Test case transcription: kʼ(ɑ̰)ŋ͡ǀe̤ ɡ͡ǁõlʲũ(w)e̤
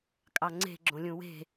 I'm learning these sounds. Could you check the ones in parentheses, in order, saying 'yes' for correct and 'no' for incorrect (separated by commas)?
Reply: no, yes